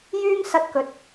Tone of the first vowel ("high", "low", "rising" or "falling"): high